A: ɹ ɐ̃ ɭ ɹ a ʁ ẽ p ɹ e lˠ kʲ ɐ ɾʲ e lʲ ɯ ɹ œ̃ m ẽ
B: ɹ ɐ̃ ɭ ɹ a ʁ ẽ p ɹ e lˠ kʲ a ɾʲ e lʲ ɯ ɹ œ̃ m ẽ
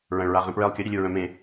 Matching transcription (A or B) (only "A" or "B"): A